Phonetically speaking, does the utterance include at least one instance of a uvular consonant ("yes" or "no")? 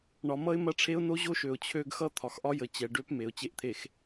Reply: no